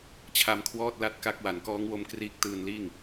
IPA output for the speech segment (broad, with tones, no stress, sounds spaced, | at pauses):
t͡ɕʰ a˧ m kʰ w ɔː˥˩ t̚ l a˥˩ t̚ k a˦˥ k̚ w a˩˦ n k ɔː˦˥ ŋ w o˦˥ m k r iː˦˥ k̚ t ɯː˧ n l iː˥˩ ŋ